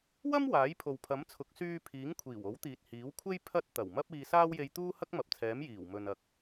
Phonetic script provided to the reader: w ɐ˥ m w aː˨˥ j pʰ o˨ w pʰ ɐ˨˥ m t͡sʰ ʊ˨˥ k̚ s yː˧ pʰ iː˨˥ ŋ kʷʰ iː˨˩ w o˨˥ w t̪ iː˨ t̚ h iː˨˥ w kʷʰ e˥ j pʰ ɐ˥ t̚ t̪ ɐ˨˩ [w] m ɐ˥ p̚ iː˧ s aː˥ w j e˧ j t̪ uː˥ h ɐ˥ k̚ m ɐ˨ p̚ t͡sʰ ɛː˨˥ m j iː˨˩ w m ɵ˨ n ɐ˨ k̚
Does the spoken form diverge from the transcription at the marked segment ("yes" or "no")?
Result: no